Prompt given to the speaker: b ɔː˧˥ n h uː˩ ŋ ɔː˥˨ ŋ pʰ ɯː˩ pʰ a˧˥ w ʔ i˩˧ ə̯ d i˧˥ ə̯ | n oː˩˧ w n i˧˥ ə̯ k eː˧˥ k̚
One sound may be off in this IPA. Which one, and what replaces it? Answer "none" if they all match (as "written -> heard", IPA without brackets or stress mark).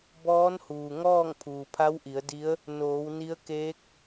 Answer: ɯː˩ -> uː˩